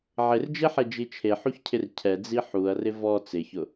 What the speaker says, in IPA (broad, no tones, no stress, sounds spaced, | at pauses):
ʕ ɪ r d͡ʒ e ħ e d͡ʒ i t͡ʃʰ e ħ u ç cʰ ɪ r cʰ ɛ d͡z i ħ u ɐ̯ r ɪ v ɔ t͡s ɪ ç ʊ